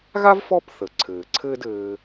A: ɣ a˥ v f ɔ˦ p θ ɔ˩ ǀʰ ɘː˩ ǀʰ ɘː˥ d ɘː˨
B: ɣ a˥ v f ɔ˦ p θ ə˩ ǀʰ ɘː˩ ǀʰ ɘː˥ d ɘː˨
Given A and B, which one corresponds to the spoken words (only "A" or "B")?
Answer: B